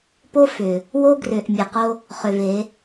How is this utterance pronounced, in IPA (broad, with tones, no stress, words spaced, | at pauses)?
po˦ fʏ˨ | wo˦ɡrʏ˨ʔ mʲa˨qo˦ | χʏ˨ ve˨˦